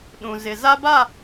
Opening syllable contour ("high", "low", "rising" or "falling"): low